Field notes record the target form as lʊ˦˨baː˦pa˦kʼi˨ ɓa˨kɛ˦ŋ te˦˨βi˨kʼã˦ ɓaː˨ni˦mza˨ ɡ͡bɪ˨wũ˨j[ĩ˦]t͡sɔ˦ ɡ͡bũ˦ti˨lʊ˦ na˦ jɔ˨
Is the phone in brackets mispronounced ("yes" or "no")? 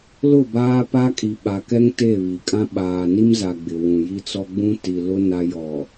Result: yes